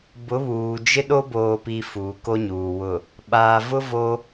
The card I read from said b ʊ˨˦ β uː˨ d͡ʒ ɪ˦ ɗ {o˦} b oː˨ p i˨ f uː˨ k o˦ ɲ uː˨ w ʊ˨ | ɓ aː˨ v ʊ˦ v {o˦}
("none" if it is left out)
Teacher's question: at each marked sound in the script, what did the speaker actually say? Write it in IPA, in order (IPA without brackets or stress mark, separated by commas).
o˦, o˦